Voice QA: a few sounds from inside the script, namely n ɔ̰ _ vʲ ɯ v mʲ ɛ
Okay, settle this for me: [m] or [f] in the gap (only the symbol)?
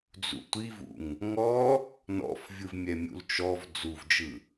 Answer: f